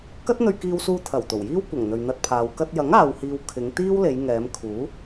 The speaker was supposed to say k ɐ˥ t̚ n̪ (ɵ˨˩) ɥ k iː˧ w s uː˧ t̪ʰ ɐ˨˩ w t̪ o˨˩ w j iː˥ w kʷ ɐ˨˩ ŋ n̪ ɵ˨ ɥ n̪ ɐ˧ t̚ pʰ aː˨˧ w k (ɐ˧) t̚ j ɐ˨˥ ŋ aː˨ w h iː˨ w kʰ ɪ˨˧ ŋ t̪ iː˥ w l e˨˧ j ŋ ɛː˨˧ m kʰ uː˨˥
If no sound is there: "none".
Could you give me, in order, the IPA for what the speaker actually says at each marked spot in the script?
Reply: ɵ˧, ɐ˧

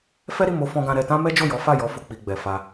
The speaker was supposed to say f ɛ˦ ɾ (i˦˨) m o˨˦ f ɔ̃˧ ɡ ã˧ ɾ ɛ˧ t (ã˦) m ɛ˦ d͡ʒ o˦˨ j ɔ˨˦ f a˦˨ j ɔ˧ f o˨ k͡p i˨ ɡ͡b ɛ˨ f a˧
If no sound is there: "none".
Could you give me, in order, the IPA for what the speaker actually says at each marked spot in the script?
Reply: i˦˨, ã˦

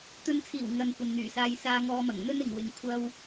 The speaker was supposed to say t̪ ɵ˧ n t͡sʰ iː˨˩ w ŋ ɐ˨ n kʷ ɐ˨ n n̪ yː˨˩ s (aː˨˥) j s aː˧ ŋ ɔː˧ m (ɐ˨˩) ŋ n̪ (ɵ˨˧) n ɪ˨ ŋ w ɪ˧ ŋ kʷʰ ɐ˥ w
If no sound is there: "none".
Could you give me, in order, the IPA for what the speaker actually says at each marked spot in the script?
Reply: aː˧, ɐ˨˩, ɵ˥

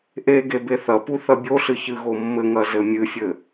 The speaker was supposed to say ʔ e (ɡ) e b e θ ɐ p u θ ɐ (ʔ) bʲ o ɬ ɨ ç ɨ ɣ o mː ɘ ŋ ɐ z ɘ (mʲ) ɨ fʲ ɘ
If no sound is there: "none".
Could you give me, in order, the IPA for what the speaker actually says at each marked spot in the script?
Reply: ɡ, none, mʲ

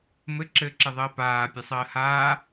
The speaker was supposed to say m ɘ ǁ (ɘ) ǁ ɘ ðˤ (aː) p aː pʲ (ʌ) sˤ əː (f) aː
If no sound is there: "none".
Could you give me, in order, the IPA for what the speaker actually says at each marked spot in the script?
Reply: ɘː, əː, ə, h

